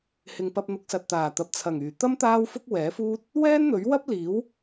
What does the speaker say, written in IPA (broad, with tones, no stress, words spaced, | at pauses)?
hɪ˨ŋpɐ˧p̚ n̪ʊ˨˥k̚sɐ˨t̚t̪aː˨˩ t̪ɐ˨p̚t͡sʰɐ˨˩ŋyː˨˩t̪ɐ˥m t̪aː˥wfʊ˥k̚wɛː˨˥fuː˥t̚ | wɛː˥nn̪ɵ˨˥ɥwɐ˥p̚ liː˨˥w